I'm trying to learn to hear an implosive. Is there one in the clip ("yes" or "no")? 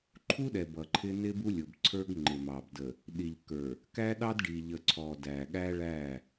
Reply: yes